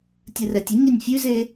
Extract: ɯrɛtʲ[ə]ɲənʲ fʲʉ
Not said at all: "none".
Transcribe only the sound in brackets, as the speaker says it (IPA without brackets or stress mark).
ə